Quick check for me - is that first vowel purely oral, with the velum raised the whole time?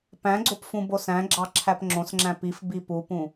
no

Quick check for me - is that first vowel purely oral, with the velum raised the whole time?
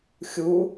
yes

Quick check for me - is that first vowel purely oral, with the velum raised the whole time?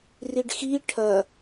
yes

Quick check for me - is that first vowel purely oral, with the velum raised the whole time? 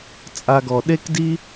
yes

